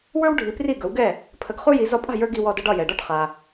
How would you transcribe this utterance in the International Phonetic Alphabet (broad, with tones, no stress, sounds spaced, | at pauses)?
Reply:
w ə˞˥ w ɖʱ i˩˥ p r i˥˩ ɡ ɵ˩˥ w ɡ ɛ˥˩ | pʰ ə˧ ɡ χ u˥ j i˩˥ z ɒ˧ pʼ a̤˥˩ j ə˞˧ ɡ i˧ w ɔ˧ d ə˧ ɖ ɒ˥˩ j ɛ˩ ɖ ɔ˥˩ ʈ χ a˩